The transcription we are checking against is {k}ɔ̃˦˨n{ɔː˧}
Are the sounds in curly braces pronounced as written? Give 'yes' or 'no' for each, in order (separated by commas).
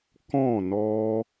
yes, no